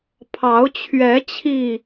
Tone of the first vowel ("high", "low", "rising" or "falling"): rising